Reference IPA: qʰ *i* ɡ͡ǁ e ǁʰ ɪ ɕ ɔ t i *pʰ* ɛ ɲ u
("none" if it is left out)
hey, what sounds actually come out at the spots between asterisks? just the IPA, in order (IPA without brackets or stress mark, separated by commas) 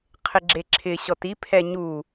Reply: ɪ, pʰ